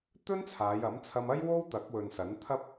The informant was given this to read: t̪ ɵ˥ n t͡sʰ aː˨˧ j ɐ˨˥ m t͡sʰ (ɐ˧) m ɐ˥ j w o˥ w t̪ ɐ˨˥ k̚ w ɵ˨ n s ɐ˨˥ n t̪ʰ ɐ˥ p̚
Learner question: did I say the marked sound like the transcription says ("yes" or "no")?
yes